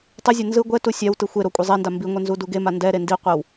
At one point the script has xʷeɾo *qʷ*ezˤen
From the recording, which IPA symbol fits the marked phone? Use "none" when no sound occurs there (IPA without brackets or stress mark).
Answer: kʷʼ